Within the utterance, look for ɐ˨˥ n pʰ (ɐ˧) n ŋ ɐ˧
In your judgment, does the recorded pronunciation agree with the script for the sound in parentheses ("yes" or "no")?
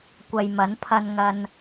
yes